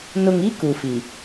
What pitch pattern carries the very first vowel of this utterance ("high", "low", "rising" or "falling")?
low